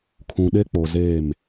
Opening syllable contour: low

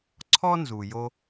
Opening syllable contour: high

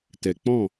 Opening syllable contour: low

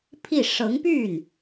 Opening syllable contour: falling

